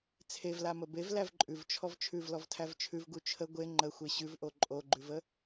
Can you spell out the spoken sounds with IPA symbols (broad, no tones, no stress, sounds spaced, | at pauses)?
t͡sʰ e v l a m ə b e v l æ v ǃʼ ʉ v t͡ʃʰ ɔ v t͡ʃʰ ʉ v l ɔ v tʰ æ v t͡ʃʰ ʉ v ɡ u t͡ʃʰ ə ɡʷ e ŋ͡ǃ ə xʷ e ɕ ʉ v ʔ o ǃʼ o ɡ͡ǃ ʉ v ə